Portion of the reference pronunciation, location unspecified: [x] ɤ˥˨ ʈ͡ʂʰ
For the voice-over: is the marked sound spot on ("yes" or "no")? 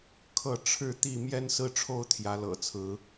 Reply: no